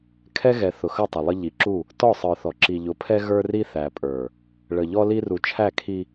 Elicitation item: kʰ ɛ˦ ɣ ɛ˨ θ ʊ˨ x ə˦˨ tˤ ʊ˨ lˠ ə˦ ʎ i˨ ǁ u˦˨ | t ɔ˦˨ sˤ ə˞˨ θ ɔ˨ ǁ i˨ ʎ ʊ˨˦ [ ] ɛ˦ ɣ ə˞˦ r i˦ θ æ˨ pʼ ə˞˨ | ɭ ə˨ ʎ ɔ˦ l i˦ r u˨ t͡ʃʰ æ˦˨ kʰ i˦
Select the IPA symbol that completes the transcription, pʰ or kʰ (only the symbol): pʰ